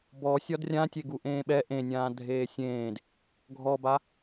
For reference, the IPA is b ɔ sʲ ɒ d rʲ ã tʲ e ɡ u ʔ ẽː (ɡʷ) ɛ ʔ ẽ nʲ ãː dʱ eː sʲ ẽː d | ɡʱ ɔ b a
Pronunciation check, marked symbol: incorrect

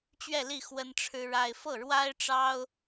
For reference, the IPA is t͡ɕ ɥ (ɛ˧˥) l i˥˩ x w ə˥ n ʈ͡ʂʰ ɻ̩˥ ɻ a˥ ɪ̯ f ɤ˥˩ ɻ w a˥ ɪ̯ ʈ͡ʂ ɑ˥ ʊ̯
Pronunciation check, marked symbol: incorrect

